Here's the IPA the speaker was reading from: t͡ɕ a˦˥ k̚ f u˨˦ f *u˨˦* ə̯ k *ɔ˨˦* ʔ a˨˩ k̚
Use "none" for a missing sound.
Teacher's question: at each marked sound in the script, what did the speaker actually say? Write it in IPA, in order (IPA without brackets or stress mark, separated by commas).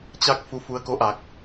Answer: u˨˦, o˨˦